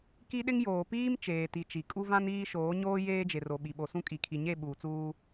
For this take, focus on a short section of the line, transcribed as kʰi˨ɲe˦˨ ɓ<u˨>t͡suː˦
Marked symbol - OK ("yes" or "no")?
no